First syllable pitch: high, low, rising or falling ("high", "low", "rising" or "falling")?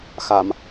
low